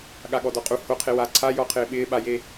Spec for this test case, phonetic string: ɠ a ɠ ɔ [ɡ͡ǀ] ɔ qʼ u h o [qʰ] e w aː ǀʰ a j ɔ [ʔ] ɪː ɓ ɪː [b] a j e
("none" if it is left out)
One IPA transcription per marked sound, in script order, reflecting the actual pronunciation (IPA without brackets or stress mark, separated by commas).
d, qʰ, qʰ, ɓ